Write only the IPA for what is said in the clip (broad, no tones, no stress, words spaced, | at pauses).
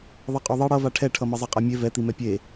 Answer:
ðˤʌqʼoðˤi ɽʌ vaʈʰɛʈʰʌmʌ zˤɯqʼamʲe vɛt̪imɛ pʲe